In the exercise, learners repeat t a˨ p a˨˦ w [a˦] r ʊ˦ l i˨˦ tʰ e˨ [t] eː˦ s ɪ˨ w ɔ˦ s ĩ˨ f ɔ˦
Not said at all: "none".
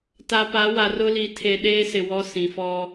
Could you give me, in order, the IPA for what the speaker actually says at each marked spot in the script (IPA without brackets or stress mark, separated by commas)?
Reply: a˨, ɗ